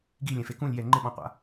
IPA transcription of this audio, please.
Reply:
ɡ i lʲ ɛ̃ f e k ũ lʲ j ɛ ŋ͡ǃ ɪ ɓ ɔ̃ qʷ a̰

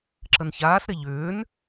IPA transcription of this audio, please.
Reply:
ǁ ə n ç aː s ɾ e ʎ ʏː n

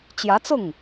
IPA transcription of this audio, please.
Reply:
t͡ɕ j ä˧˥ t͡s ʊ˥˩ ŋ

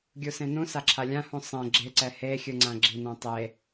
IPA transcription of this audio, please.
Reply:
ɡʲ u s ẽ n ũ s a ǁʰ a lʲ ã h ũ sˤ ɛ̃ ɡ͡ǁ e ǀ ɛ h e xʲ ɯ ŋ͡ǀ ã ɡ͡ǁ i n õ tˤ e

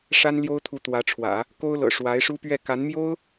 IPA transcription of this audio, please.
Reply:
ʂ a˥ n l j o˥ ʊ̯ t̪ʰ u˧˥ t̪ w ä˧˥ ʈ͡ʂʰ w ä̰˨˩˦ | k o˥ ʊ̯ l ɤ̰˨˩ ʂ w a˧˥ ɪ̯ ʂ u˥ p ɥ ɛ˥˩ k a˧˥ n m j o˥ ʊ̯

